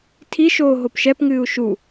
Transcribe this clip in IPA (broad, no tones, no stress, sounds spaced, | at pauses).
tʰ i ʃ oː ɦ o p ʃ ɛ p ŋ ɨː u̯ ʃ u